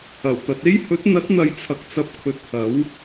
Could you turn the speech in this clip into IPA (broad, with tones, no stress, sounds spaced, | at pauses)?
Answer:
ɐ˨˩ w t̪ ɐ˨ t̚ e˥ j h ɵ˨˥ t̚ n̪ ɐ˨˥ t̚ n̪ ɐ˨ j t͡sʰ ɐ˨ k̚ t͡s ɐ˧ p̚ kʰ ɵ˧ t̚ h ɐ˨˥ w